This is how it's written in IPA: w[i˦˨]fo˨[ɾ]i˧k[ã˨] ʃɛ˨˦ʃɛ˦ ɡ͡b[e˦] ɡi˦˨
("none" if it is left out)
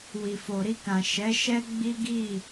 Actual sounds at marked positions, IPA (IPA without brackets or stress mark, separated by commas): i˨, ɾ, ã˨, i˦